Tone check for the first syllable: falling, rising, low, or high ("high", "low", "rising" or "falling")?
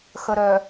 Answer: low